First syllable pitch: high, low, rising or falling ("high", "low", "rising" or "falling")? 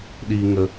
low